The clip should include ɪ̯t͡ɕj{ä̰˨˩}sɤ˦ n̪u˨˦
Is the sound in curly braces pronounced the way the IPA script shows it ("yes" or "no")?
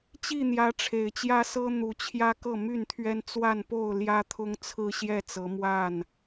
no